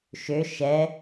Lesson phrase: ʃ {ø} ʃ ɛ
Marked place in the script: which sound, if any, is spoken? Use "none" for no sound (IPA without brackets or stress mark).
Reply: ø